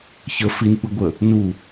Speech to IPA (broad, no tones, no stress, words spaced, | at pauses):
çə finpɯ ɡʷə | nu